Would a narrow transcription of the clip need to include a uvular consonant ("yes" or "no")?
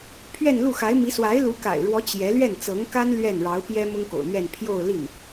no